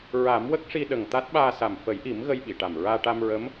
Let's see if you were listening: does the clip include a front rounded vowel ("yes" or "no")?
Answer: no